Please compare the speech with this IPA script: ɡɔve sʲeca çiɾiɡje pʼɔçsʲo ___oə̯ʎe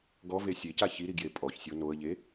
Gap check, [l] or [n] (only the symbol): n